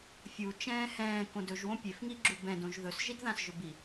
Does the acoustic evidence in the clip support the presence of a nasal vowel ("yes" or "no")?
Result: yes